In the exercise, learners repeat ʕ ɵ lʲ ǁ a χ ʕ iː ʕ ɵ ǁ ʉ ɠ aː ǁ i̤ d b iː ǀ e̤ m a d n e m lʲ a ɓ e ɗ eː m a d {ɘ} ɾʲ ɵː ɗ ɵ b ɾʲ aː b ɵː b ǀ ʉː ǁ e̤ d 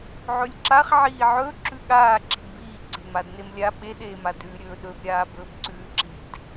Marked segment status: incorrect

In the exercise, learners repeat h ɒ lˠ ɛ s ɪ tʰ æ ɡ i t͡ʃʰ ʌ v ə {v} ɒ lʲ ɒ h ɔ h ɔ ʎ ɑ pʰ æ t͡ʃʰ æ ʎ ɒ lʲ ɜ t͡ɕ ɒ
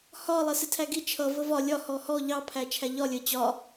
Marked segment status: correct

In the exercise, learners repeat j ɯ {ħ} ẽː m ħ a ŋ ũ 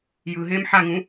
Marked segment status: incorrect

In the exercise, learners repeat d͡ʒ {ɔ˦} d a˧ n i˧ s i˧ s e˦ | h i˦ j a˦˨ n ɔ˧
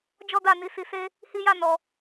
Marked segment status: correct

